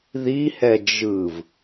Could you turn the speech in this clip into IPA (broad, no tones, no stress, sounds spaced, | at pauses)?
ð i h ɛ d͡ʒ ɯ v